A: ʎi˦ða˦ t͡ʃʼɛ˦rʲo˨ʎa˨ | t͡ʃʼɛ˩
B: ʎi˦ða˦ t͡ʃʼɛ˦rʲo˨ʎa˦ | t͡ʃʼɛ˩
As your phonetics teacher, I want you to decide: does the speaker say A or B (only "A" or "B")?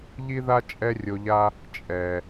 B